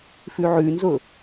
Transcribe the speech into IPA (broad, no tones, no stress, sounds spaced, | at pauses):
f ʉ ʕ ʉ n z ʊ